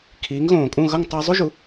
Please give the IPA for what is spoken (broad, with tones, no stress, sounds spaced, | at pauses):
kʰ iː˩˥ ŋ ɣ õː˩ kʼ ũ˥˩ ɣ ʌ˥˩ ŋ tˤ a˥ zˤ u˥ ʒ u˩˥